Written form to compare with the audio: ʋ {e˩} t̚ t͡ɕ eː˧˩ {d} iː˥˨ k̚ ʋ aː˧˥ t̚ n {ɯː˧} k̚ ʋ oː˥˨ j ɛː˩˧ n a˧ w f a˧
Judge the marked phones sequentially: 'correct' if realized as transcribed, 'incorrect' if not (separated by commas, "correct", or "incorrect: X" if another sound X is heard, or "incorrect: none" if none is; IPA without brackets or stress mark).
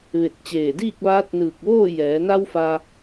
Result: incorrect: e˧˩, correct, incorrect: ɯː˧˩